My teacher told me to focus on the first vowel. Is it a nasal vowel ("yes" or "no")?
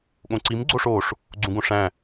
yes